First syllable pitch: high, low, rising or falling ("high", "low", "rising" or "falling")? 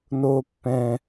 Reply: high